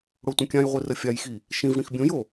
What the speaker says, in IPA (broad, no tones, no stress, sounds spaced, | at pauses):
ɽ o tʷ ə̃ kʲ ã j ʁʷ i r ə fʲ a j x i | ʃ ĩ v ɽ ĩ x bʲ õ j o